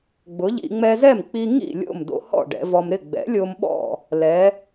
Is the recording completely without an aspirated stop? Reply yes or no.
yes